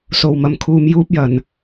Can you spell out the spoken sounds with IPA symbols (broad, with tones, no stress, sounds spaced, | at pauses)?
s o˨ w m ɐ˨ m kʰ uː˨ m j uː˥ p̚ j ɐ˨ n